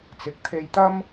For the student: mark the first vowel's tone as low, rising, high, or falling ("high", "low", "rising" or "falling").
rising